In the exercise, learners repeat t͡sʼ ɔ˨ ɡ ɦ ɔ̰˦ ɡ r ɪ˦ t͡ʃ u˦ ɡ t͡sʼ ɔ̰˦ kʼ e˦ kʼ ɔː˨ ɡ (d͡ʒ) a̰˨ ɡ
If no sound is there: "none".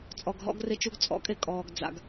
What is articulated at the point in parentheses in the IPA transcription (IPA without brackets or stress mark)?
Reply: d͡z